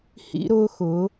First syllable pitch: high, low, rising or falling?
high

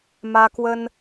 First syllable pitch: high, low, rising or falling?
high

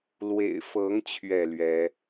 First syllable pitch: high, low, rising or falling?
low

